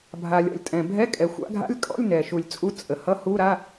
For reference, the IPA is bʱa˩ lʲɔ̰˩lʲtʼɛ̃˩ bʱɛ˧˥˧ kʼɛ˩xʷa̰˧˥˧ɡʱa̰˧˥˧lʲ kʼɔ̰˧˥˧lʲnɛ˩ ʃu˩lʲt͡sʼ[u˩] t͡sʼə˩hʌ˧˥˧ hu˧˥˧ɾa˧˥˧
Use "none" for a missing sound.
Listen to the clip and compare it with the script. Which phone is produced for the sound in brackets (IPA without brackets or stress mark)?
u˧˥˧